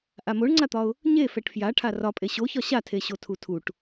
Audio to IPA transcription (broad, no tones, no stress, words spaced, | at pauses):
ʔamoɳŋ͡ǀat̪ɒʊ̯ | ɲe fɛʈfjaʈʰa rɒpʼe ɕoçɒ ɕatʰeɕo tʰutʰuʈ